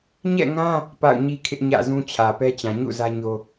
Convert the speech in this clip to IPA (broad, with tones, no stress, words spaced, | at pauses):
ɲɛ̰˦˨ŋã˦ | pa̰˦˨ʊ̯ɲi˦kʰɪ˦ʔ ɲä̰˦˨zũ˦t͡ɕʰä˨pɛ˦ t͡ɕã˨ɲṵ˦˨ zä˦ɲo˦